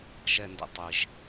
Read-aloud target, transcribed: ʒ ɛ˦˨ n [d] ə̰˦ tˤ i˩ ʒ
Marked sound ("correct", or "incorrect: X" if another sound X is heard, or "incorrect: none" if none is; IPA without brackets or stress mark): correct